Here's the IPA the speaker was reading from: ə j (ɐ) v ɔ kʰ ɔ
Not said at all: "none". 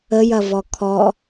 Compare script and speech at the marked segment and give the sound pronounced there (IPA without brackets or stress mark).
ɐ